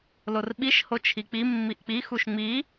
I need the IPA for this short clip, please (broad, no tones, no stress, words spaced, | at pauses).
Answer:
lorɓiʃ hot͡ʃʰik͡pi mːiʔk͡pi xuʃŋ͡mi